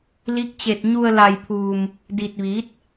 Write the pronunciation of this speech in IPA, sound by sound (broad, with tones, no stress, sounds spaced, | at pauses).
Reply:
l i˧˥ k̚ t͡ɕ e˧ t̚ ɲ u˧ ə̯ l a˧ j pʰ uː˧ m | d i˧ t̚ ʋ iː˧˥ t̚